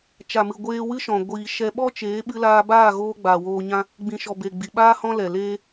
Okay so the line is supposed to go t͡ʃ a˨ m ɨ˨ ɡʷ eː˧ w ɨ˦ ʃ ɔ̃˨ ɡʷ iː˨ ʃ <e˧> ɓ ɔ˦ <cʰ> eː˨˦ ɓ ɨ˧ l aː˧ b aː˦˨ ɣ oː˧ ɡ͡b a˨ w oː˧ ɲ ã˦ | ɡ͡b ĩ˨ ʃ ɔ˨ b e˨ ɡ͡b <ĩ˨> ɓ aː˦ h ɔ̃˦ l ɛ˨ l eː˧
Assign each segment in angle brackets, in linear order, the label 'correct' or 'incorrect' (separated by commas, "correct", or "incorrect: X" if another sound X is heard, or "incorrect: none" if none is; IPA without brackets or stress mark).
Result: incorrect: ɛ˧, incorrect: t͡ʃ, incorrect: i˨